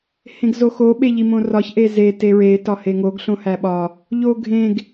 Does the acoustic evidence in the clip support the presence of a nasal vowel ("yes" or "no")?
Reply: yes